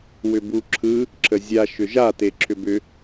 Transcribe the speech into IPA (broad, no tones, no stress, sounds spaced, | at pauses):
w ʏ b u ǁʰ ɯ | ǁʰ ə zʲ a ʃ ʏ ʒ a t e ǁʰ ʏ b ʏ